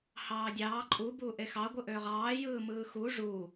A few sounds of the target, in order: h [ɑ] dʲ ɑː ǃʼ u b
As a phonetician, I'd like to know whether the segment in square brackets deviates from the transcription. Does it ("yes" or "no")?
yes